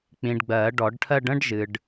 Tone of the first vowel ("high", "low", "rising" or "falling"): low